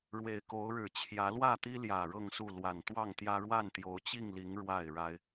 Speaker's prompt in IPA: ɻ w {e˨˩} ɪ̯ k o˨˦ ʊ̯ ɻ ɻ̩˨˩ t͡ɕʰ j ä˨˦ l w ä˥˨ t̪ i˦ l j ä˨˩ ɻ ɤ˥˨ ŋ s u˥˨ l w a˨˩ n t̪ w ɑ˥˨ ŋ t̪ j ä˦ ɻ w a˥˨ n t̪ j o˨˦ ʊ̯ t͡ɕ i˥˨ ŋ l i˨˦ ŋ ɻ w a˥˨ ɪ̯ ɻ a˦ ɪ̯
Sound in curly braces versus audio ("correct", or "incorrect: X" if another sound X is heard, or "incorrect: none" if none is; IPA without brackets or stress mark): correct